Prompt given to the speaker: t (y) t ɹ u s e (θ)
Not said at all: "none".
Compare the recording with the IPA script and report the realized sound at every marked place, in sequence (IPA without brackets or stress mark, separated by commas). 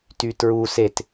y, t